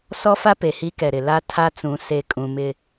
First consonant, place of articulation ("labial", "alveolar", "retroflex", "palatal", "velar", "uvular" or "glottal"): alveolar